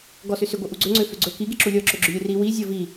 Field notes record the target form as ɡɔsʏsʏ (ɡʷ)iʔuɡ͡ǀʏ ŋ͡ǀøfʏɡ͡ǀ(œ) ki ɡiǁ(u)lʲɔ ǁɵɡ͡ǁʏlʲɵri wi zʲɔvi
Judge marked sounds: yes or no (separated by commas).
yes, no, yes